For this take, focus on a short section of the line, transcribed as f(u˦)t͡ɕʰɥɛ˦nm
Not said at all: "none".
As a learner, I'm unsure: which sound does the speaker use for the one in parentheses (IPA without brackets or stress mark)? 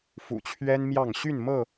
ṵ˨˩